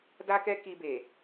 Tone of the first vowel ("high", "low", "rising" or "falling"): high